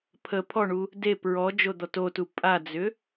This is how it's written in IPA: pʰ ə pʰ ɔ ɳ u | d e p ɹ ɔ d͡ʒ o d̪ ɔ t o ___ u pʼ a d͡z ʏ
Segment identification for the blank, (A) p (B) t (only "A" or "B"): B